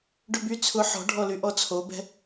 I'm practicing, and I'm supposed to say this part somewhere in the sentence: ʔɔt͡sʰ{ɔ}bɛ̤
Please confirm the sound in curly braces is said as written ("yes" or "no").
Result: no